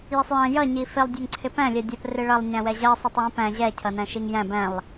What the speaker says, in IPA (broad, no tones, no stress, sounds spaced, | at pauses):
j ɪ sˤ j æ̃ j ʌ ɲ i f ɪ lˠ dʲ æ ŋ ǀʰ ɪ p æ̃ lʲ ɜ dʲ ɜ p r ɪ ɭ ʌ lˠ ɲ æ̃ w ɛ ʑ ɜ sˤ ɜ tˤ j ĩ p æ̃ ʑ ɛ cʰ ʌ n æ̃ ʃ i ŋ j æ̃ b æ̃ lˠ